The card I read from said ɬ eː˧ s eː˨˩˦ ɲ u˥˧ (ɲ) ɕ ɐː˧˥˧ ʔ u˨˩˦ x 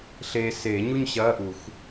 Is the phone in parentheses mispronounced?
no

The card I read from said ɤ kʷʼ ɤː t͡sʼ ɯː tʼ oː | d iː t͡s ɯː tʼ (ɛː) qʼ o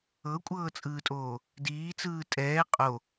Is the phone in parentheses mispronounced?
no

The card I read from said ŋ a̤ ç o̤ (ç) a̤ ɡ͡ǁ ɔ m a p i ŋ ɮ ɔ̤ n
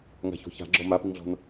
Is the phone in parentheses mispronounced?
no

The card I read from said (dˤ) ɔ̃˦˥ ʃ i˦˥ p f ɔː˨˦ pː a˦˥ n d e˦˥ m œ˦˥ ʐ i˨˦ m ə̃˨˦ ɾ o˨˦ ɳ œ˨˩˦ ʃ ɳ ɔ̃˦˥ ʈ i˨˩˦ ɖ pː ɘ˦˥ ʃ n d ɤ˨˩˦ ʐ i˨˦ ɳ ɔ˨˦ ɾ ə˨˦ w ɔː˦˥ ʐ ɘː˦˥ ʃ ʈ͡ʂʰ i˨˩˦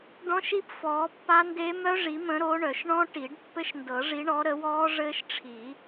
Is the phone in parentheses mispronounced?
yes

